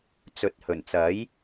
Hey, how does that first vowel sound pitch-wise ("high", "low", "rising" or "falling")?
rising